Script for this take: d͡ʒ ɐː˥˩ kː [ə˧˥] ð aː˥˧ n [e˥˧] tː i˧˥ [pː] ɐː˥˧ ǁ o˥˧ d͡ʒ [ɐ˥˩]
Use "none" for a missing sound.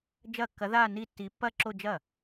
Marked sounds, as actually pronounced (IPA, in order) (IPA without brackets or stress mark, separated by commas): ɐ˧˥, i˥˧, pː, ɐ˥˩